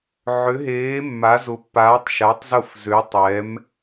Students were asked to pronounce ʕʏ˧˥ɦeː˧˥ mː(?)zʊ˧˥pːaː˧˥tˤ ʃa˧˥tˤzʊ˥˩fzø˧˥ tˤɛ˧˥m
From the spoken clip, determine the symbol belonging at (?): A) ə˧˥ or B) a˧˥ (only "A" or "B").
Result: B